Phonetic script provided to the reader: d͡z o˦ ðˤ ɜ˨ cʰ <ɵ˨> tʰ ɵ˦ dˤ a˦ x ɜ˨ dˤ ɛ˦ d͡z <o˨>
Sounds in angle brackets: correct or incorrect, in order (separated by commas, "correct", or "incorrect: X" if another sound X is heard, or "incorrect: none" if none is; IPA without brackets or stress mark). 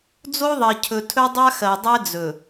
correct, incorrect: ɵ˨